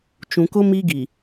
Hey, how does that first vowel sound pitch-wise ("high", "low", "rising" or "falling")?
low